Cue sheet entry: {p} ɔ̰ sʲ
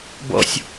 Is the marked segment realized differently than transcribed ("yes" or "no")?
yes